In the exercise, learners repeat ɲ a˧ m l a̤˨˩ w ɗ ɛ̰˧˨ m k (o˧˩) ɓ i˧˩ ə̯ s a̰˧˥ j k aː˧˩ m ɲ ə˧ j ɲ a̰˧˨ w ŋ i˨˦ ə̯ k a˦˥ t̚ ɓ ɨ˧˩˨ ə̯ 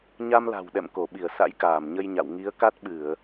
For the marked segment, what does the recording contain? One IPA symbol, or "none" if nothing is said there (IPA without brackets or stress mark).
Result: o˧˩